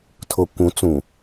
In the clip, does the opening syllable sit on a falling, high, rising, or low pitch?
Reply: low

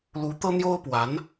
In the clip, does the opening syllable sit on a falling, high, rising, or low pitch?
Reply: rising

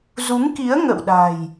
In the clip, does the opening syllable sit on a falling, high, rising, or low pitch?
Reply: rising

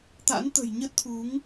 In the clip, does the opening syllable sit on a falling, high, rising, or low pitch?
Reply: rising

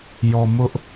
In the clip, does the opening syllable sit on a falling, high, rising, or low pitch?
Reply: low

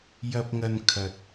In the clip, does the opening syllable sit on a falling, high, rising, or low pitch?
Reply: low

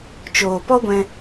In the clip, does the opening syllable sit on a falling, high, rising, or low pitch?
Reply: low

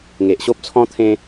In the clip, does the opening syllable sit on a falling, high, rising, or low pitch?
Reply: low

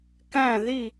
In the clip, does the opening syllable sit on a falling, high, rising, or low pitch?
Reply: falling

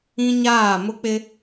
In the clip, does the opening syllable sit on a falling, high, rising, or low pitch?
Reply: high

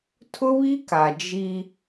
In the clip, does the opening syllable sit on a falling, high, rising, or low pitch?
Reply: high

